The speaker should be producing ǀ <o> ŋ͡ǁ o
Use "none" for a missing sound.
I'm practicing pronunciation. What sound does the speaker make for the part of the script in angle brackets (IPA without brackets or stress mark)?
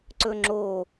ɵ